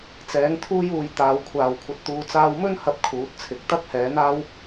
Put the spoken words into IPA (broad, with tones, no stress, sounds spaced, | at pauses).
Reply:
t͡s ɛː˨˥ ŋ t̪ʰ uː˥ j uː˧ j t̪ aː˨ w kʷʰ aː˨ w kʷʰ ɐ˧ t̚ t̪ uː˧ t͡s aː˧ w m ɵ˥ n h ɐ˥ p̚ kʰ uː˨˥ t̚ t͡sʰ ɪ˨ k̚ t̪ ɐ˥ k̚ h ɛː˨˥ n̪ aː˥ w